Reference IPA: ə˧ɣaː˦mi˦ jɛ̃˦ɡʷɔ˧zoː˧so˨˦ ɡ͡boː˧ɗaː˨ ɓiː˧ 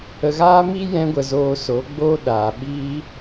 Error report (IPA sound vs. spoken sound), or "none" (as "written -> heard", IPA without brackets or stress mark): ɔ˧ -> ə˧